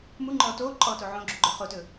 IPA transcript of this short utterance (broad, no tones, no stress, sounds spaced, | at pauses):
m u ŋ͡ǃ ɔː t oː ǃʼ ɔː t o ʕ õ ɡ͡ǁ u ɡ͡ǃ ɵ χ o t ɵ